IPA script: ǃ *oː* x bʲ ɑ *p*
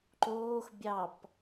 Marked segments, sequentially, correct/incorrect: correct, correct

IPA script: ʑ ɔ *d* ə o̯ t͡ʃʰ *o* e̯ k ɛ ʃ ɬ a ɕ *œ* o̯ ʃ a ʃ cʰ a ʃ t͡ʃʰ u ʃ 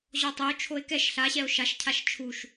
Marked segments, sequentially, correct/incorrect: incorrect: tˤ, correct, incorrect: ɛ

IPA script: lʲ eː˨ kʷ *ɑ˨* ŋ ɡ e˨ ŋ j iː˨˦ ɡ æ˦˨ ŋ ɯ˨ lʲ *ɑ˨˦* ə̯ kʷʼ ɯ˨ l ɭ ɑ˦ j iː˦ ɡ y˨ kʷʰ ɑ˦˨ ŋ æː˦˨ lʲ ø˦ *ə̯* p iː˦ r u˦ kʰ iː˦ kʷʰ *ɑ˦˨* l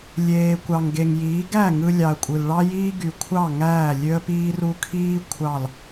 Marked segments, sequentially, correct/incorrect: correct, incorrect: ɑ˨, correct, correct

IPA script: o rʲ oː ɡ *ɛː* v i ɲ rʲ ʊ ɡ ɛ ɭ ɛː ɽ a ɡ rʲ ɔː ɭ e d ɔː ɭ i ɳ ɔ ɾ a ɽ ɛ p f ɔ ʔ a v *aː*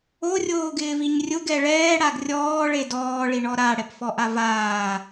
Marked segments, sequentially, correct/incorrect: incorrect: ɪː, correct

